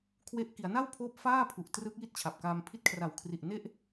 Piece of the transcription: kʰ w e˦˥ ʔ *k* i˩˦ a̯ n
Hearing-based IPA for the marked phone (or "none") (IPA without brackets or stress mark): k